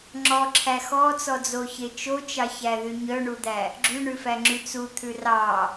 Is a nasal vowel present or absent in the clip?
absent